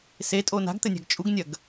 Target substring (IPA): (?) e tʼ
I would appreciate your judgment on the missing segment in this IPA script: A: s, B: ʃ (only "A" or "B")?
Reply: A